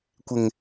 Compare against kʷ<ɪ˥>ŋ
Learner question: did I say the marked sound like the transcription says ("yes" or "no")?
no